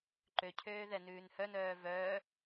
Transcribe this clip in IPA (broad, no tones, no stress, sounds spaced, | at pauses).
ǃ ø cʰ øː ð ɛ n ʉː n h œ n œː v œː